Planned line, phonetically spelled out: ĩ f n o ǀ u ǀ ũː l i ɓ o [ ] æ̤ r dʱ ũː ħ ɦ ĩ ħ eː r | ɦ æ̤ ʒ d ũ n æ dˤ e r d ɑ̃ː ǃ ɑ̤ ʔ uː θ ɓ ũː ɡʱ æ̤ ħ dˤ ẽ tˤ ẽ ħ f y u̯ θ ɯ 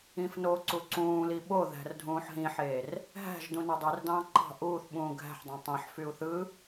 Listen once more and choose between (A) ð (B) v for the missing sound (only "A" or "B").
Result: A